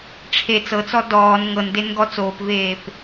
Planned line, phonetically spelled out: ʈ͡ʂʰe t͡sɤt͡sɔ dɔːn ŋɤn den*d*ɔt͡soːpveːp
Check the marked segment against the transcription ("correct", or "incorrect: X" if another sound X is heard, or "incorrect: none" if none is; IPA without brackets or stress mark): incorrect: ɡ